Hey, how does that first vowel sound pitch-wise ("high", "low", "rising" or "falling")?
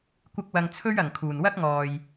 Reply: high